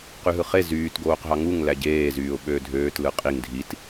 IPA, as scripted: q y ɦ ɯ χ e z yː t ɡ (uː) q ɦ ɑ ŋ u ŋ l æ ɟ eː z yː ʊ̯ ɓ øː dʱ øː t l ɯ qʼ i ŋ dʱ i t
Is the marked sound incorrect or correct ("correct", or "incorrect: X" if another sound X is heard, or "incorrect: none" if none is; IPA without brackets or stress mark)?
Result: incorrect: oː